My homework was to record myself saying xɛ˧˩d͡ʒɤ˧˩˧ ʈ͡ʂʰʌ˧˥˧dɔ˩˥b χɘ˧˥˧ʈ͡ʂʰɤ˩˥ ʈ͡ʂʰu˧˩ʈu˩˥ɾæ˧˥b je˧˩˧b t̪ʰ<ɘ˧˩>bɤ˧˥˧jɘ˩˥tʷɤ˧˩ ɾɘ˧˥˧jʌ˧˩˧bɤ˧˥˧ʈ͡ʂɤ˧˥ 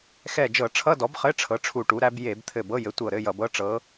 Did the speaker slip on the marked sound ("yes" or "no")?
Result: no